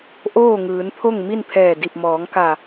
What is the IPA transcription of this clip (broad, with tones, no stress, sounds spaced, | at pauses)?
ʔ oː˥˨ ŋ ɯː˩˧ n pʰ o˥˨ ŋ m i˥˨ n pʰ ɛː˧˩ d i˧˩ p̚ m ɔː˩˧ ŋ k a˧˩